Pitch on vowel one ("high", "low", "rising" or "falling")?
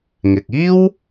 low